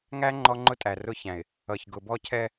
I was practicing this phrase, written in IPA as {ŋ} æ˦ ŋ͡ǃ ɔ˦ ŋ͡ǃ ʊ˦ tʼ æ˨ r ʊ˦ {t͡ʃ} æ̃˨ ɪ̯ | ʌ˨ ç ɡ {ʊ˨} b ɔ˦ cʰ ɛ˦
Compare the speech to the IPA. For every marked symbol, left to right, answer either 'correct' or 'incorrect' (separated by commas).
correct, incorrect, correct